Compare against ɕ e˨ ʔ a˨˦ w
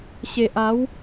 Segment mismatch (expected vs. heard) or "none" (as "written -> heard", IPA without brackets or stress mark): none